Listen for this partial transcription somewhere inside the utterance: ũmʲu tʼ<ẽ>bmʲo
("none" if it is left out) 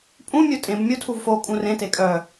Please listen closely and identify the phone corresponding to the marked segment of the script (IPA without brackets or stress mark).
ẽ